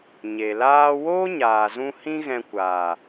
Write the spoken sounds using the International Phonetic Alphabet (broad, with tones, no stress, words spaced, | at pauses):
ɲe˨laː˦ woː˦ɲaː˨zũ˧ hĩ˦ɣɛ̃˧kʷaː˨